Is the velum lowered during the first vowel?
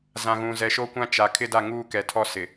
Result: yes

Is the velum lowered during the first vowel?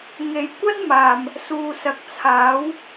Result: no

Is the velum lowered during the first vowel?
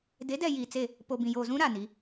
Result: no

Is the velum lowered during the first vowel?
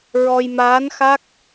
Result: no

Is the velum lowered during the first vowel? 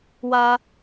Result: no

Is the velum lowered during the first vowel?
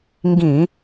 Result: yes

